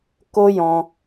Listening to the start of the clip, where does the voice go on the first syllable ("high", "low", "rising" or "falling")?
high